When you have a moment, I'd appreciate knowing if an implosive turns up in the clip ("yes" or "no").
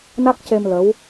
no